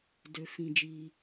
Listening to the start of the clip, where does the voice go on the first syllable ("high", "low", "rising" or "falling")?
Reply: low